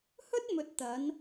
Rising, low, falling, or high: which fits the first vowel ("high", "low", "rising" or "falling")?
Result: high